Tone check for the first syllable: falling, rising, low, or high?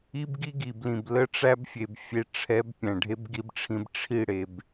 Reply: high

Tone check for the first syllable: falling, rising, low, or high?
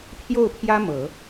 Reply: falling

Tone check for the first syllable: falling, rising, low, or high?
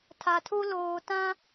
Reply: low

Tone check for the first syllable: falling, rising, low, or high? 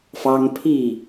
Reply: high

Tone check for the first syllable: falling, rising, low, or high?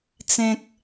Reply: low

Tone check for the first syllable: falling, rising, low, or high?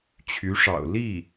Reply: rising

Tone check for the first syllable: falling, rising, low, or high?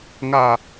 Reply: low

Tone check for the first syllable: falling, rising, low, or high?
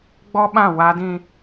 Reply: high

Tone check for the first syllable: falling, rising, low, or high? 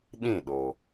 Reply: falling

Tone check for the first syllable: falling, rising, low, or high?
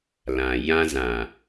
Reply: low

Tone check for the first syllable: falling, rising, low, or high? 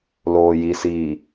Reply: low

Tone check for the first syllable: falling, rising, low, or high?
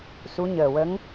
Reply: rising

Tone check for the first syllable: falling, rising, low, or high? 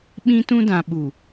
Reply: high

